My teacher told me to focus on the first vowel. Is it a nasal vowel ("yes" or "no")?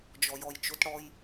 no